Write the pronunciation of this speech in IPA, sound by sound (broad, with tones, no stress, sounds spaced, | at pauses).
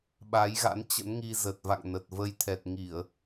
ɓ a˨˦ j ɣ a̰˧˥ n t͡ɕ ə̰˧˥ n ŋ i˧ z ə˨˩ t̚ v a̰˧˨ ŋ n ə˨˩ t̚ v ə˧ j t̪ʰ ɛ˨˩ t̚ ŋ i˧˩˨ ə̯